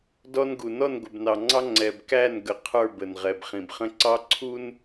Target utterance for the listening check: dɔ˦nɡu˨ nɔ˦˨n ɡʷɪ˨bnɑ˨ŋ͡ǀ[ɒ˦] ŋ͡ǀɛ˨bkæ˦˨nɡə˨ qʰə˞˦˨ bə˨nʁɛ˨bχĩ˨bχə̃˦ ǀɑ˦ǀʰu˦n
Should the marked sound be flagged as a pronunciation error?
yes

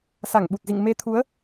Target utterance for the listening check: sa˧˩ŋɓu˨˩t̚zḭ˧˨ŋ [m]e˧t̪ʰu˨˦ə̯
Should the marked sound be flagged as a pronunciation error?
no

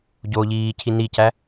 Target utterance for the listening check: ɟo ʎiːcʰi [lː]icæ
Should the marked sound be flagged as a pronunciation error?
yes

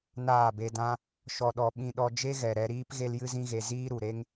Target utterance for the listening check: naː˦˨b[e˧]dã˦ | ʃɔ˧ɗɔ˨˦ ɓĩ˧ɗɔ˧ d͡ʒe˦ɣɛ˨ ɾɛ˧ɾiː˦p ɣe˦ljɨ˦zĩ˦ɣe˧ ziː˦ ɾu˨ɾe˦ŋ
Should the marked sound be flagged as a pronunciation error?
no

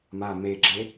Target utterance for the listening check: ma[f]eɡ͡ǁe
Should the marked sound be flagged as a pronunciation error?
yes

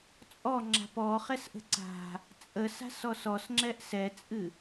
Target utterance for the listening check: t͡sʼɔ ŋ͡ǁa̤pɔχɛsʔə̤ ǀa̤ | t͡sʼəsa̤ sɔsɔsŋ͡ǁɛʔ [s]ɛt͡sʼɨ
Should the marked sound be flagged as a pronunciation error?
no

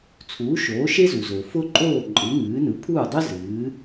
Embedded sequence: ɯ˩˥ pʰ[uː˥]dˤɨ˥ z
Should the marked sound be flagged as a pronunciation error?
yes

